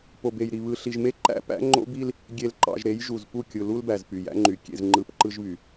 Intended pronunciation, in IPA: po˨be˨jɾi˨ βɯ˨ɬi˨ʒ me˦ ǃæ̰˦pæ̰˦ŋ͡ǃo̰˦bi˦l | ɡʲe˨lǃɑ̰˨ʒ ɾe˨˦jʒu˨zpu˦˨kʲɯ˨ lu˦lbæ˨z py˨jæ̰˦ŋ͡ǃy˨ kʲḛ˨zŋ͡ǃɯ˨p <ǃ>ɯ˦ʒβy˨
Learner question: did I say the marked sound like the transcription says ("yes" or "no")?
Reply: yes